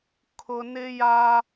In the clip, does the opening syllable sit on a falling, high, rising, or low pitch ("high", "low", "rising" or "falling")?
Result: low